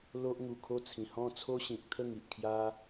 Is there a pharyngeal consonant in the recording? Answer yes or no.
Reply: no